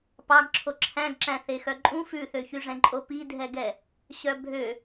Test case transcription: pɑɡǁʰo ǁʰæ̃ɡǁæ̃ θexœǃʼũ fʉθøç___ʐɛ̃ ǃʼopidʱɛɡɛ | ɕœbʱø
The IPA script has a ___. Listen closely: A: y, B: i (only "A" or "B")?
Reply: A